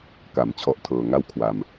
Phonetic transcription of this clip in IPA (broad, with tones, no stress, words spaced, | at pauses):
ka˩˦m t͡ɕʰɔ˦˥ʔtʰɤː˧ ŋa˥˩wkʰwa˧m